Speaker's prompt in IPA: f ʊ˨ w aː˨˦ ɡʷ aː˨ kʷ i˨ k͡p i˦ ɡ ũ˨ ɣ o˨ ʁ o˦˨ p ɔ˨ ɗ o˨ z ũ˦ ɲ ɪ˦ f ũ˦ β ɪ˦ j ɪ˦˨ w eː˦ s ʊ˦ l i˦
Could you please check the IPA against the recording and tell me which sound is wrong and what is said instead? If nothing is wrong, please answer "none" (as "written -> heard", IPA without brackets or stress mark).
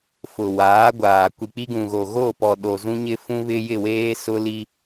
ʁ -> ɣ